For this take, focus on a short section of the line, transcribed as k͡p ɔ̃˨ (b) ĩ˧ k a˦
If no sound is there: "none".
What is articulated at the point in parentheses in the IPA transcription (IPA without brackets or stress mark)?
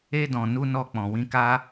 w